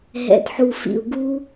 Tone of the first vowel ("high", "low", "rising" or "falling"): low